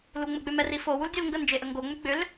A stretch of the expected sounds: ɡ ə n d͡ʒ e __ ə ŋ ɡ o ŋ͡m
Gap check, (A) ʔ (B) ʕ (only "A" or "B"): A